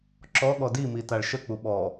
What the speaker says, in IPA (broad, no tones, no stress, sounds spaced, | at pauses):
ǁ ɔ ɠ ɔ d i m i t a ɭ ʃ ə k͡p u ɓ ɔ